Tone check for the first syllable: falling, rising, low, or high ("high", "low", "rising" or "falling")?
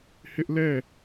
high